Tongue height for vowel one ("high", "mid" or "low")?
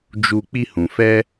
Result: high